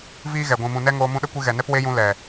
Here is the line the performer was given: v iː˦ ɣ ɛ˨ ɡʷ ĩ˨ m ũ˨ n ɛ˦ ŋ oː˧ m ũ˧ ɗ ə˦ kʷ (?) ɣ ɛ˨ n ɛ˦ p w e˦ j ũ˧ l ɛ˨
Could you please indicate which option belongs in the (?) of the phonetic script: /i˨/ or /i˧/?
i˧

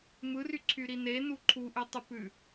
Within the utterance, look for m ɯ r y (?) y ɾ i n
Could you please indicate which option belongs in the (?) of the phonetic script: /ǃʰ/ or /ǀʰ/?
ǀʰ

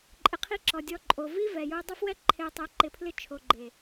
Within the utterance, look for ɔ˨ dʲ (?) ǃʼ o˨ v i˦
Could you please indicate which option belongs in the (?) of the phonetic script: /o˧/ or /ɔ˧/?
ɔ˧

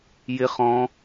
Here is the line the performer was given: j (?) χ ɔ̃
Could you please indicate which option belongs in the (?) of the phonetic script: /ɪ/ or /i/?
ɪ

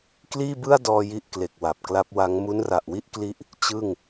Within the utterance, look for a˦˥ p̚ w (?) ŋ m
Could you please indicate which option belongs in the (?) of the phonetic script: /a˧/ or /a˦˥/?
a˦˥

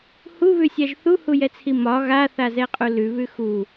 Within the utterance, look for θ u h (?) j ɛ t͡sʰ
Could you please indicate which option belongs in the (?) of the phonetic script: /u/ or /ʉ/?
u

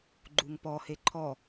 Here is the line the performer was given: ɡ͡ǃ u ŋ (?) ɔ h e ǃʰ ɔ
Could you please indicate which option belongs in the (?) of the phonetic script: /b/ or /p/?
p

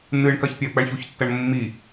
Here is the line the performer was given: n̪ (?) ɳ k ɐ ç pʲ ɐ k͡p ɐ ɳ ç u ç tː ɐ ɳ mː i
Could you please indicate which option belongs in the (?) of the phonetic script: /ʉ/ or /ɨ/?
ɨ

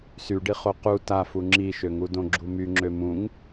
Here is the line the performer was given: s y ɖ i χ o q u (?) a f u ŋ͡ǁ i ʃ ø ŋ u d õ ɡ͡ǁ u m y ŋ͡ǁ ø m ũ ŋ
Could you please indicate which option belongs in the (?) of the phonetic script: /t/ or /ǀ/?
t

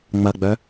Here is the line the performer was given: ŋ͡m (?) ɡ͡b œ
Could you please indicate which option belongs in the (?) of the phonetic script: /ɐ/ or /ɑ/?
ɐ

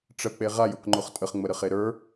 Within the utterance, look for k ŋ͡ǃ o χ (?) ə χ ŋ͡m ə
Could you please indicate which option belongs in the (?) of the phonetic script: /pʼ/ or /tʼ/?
tʼ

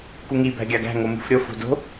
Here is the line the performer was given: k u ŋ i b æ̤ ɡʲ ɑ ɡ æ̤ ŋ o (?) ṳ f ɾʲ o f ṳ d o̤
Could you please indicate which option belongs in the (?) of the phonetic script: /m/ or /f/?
m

